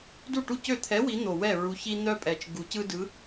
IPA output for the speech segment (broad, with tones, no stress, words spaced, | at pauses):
du˥˩ʈu˥˩cø˥˩ t̪ʰɛ˨˥ wi˨˥n̪o˨˩wɛ˥˩ ɹu˨˥çi˦ n̪œ˦pʼɛ˨˩t͡ʃ ɡu˨˩˦cɯ˦dɯ˨˥